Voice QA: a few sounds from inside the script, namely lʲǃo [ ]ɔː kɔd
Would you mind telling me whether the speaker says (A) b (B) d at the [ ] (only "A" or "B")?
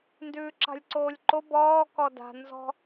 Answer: A